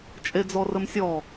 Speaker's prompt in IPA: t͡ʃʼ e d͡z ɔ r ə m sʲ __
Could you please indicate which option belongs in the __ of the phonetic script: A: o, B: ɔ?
B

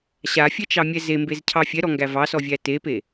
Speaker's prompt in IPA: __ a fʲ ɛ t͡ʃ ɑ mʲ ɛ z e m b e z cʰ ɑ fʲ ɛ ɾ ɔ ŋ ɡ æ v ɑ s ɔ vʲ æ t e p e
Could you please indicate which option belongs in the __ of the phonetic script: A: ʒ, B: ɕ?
B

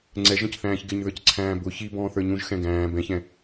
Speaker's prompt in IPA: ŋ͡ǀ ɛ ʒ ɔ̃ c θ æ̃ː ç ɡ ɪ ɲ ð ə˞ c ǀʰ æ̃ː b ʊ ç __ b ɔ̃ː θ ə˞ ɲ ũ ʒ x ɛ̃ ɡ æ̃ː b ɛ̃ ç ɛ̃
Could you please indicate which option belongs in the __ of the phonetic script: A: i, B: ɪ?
A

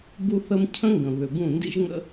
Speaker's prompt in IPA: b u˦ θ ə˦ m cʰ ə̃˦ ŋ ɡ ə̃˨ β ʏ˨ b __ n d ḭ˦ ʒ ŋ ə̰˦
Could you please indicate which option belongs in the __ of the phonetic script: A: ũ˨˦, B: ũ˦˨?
B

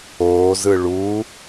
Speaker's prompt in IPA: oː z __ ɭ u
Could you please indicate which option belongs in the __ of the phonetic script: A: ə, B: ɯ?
B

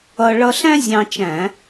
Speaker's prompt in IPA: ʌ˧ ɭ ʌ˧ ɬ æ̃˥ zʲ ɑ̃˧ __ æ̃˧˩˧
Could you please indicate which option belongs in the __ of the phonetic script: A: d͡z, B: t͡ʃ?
B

